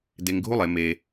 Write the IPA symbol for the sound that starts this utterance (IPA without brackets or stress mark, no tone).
d